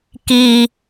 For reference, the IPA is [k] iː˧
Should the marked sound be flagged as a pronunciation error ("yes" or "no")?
no